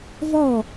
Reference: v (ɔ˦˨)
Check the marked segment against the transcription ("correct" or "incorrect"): correct